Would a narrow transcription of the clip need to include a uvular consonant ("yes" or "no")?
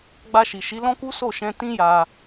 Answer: no